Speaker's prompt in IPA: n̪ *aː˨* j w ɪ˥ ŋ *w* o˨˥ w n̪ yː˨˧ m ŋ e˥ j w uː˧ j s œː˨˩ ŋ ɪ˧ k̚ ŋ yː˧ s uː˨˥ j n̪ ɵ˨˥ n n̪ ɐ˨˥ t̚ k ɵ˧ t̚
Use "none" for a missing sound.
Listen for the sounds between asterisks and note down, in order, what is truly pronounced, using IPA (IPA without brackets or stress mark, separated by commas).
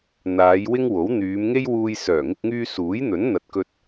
aː˨˧, w